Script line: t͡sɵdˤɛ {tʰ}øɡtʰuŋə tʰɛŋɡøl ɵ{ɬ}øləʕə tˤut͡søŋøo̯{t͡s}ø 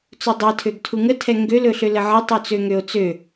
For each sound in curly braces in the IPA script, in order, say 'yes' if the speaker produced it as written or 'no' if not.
yes, yes, yes

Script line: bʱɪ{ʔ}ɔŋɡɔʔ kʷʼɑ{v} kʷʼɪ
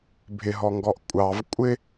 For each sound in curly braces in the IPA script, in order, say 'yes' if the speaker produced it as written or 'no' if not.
no, yes

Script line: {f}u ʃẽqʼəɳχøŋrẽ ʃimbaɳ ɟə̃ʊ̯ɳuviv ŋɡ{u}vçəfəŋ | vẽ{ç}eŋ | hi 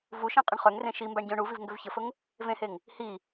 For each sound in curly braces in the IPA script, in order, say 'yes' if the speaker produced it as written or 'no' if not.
no, no, no

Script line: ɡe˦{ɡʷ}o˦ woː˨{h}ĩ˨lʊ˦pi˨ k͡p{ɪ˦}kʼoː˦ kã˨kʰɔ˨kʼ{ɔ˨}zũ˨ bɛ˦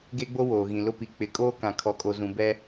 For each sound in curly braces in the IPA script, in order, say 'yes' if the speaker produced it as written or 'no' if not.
no, no, no, no

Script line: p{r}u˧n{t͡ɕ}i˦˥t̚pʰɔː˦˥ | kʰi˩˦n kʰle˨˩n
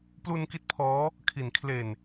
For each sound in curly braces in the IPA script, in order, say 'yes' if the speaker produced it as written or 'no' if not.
no, no

